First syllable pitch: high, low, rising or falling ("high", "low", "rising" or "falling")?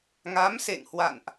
rising